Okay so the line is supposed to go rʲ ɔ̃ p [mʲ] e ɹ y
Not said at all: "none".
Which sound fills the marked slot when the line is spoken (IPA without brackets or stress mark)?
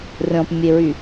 mʲ